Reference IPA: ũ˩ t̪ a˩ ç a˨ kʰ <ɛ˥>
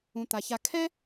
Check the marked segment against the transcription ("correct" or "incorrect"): correct